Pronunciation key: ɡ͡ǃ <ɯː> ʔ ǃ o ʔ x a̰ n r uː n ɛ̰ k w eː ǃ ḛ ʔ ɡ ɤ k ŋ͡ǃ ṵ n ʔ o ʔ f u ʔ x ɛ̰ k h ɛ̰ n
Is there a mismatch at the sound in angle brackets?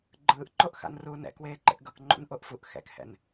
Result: no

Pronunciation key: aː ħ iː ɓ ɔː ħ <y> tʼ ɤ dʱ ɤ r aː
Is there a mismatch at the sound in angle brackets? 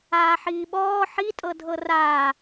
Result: yes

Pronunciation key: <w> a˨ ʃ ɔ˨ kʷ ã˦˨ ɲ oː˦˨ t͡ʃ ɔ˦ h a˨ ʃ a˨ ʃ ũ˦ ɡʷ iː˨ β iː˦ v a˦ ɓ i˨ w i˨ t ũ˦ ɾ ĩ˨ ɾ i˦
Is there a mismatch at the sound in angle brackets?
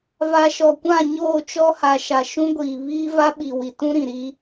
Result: yes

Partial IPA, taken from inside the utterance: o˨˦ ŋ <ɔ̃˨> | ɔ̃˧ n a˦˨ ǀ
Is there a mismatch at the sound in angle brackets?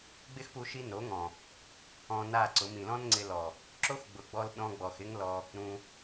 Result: no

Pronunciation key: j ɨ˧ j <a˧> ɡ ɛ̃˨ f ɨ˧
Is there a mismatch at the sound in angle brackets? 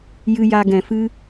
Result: no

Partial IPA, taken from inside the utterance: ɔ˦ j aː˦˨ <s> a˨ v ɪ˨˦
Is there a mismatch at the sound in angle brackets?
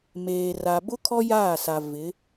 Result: no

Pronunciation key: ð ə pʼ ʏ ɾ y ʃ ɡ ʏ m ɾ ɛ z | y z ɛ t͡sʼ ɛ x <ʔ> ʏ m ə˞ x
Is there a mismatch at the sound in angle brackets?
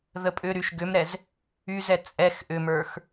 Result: no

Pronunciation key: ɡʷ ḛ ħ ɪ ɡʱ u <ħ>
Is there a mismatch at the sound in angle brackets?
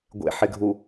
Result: yes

